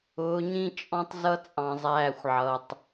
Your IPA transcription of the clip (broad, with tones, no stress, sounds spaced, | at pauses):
ʊː˨˦ ɲ ĩ˦ t͡ʃʼ ɔ̃˦ tˤ z ʌ˦ t͡sʼ ɑ̃˨ zˤ æː˦˨ xʷ ʕ ʌ˨ tˤ